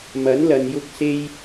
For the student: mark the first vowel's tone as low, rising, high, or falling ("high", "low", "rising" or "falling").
rising